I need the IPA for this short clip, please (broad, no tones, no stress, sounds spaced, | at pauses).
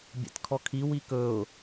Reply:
bʲ a̰ t kʰ ɔ kʰ i w i k ɵ ʊ̯